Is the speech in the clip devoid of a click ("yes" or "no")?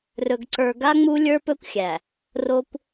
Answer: no